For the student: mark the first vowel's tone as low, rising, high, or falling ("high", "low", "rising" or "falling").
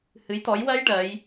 rising